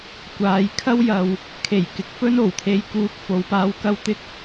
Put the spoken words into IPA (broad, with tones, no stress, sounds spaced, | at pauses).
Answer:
kʷ aː˨˧ j kʰ ɐ˥ w j ɐ˨ w | kʰ e˨˩ j k ɪ˨˥ k̚ f ɵ˥ n o˨˩ w t̪ʰ e˨˧ j k uː˨ k̚ f o˨˥ w p aː˧ w k ɐ˥ w t̪ ɪ˥ k̚